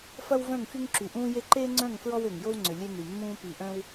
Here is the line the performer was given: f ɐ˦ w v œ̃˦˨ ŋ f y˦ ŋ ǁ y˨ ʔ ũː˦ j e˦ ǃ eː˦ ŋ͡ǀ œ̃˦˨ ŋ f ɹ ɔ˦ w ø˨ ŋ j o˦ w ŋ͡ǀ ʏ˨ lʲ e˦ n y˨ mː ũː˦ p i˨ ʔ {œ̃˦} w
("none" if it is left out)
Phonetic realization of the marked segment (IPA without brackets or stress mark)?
œ̃˦